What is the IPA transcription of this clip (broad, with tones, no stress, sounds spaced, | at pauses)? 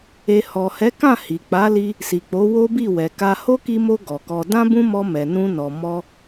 e˧ h ɔ˨ h ɛ˨˦ k ã˦˨ h i˨ k͡p a˨˦ l i˧ | s i˨ k͡p o˨˦ w o˦ b i˦˨ w ɛ˨ k a˧ h o˦ k i˧ m o˧ ɡ ɔ˨ k ɔ˧ d ã˦ b ũ˦ m ɔ˧ m ɛ˨ n ũ˧ n ɔ˨ m ɔ˧